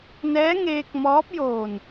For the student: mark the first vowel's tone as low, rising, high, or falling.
rising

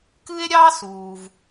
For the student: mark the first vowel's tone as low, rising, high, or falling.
high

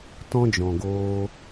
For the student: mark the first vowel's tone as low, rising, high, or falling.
high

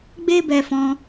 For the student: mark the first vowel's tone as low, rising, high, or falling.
high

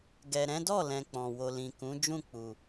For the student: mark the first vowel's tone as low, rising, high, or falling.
low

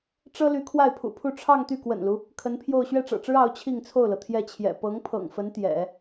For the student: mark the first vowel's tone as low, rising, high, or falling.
high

